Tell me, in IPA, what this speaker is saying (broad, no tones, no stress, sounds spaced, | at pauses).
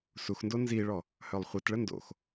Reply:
s u x n d o n z i ɭ ɔ | h œ lˠ χʷ i t ɭ ə n d o̰ x